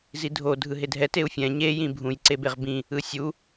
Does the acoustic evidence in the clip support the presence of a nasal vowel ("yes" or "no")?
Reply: yes